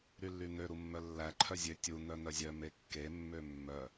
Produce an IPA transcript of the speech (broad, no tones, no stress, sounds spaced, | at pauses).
ɾ y lː y n̪ ø ɾ u mː œ lː æ ǃʰ œ zʲ ø tʲ u n̪ œ n̪ œ zʲ œ m e kː e mː ø mː œ